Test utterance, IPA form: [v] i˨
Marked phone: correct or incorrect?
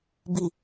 incorrect